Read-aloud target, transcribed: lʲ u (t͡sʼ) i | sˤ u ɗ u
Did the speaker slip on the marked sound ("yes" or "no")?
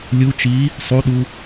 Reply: yes